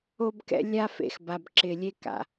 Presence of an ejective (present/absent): absent